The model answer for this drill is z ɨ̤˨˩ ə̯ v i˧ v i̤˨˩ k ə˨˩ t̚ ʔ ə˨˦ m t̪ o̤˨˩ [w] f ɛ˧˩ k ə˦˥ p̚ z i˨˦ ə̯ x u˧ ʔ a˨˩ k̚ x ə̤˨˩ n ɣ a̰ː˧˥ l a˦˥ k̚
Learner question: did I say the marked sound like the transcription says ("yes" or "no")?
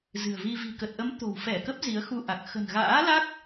yes